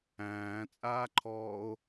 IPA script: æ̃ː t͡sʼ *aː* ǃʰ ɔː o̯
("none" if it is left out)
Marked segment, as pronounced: aː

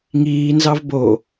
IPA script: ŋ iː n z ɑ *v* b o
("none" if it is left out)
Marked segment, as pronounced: v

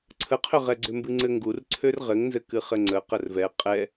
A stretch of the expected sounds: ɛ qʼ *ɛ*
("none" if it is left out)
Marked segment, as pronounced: ɛ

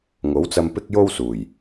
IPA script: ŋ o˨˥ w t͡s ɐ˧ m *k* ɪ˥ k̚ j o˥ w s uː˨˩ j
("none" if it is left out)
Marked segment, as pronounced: p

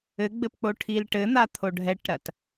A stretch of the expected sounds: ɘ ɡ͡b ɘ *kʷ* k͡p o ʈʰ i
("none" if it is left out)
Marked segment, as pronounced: p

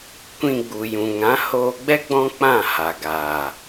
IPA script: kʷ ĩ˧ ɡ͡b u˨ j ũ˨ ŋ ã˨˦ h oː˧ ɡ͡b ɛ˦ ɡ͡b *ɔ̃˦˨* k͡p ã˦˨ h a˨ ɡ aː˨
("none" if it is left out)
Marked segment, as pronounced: ɔ̃˦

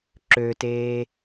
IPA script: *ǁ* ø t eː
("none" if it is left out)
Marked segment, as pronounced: ǁ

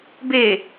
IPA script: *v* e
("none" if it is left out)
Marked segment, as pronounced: b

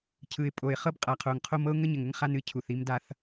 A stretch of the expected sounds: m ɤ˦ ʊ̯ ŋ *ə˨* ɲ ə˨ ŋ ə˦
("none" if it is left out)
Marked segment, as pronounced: ə˦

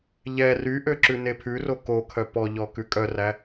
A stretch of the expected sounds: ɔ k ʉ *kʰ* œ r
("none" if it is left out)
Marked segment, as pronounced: kʼ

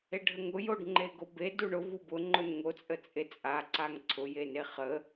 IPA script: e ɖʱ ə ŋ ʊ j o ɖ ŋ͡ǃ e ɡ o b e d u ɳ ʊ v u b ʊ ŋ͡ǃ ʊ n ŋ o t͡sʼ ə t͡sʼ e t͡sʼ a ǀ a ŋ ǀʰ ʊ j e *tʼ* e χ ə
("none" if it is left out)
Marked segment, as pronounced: n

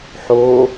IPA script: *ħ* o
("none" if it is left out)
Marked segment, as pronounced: ħ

